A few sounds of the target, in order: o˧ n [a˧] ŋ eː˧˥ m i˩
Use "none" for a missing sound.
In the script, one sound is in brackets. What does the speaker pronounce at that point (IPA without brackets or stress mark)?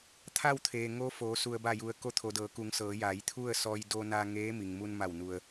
a˧